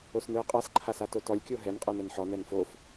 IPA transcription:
osnɯə̯qʼas ǃʰasatotɔlʲ kʲoɦɛn qʼɛnɛnħɔ nɛnfof

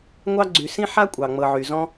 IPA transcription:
ŋʷɑ˦ɡ͡ǀy˨ sĩ˥ħa˥kʷʼɑ˩ ŋ͡mɤ˨ʕy˩ zɔ̃˦

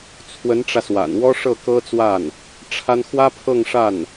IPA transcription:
t͡sʰwə˧˥nʈ͡ʂä˧swa̰˨˩n wɔ˥ʂɤ˥˩kɤ˥t͡swa˥˩n | ʈ͡ʂʰa˥n xwä˥pʰɤ˥˧ŋʂa˥˩n

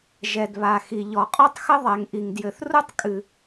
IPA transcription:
ʒɛ˩dβa˩xi˩ ʎɔ˩qʼɔ˥tˤxɘ˥ ðˤɛ˩ŋʔi˩ŋdjɘ˩θ ru˥tˤkʼɨ˩

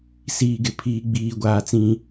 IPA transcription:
siː˦ɡɪ˨ pʰiː˦ɡ͡biː˦ ɡʷaː˦t͡sĩ˦

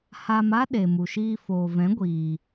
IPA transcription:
ha˧m a˦ɗe˨mu˨ʃiː˧ foː˨vɛ̃˨˦ɡʷiː˨

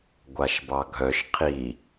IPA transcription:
ɡʷaʃbɑɡʱœʃ qʰi

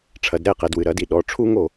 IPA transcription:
ʈ͡ʂʰɐ˩˧d ɾɛ˥˩qɛ˩˧d wɨ˩˧ɾɐ˧˩˧di˥˩ ɗɔ˩˧˩ʈ͡ʂʰu˥ŋo˥˩

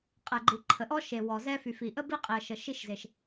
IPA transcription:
qʼɛ˩ɡ͡ǃi˩ ǃʰə˩ʔɔ˥ʃe˩ wɔ˩zɛ˥ fy˩fi˩ʔə˥ bi˥qʼi˩ə̯ʃə˩ ʃi˥ʃze˩ʃ

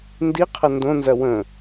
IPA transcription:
ndiqʰɐ ndõnzɐ wə̃

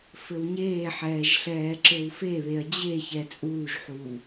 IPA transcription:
fɘwɲeːħɛːʒ ɬɛːǁɘwfeβeɐ̯ d͡ʑeçɛ t͡sʼuːʒħuː

